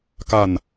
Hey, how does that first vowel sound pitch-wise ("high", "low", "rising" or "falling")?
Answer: falling